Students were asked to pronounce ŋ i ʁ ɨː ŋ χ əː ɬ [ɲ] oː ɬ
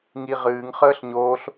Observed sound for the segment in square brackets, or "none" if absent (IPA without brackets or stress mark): ɲ